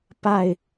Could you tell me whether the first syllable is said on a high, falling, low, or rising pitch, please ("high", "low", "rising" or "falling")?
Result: falling